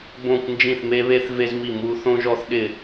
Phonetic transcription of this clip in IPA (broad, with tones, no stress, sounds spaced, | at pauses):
b õ˥˧ kʷ n d͡ʒ ĩ˥˧ θ m e˥ β e˥ θ v e˥ z m i˥˧ m u˥ θ õ˥ ʒ ɔ˥ θ ɗ ɪː˥˧